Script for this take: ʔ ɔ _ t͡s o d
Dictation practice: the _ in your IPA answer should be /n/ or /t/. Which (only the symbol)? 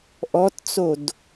t